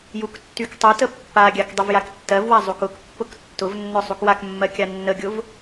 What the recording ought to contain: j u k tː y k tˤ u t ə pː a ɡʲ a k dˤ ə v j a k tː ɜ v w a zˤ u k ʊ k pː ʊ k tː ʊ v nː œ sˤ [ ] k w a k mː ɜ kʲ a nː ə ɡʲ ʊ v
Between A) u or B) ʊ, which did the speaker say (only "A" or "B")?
A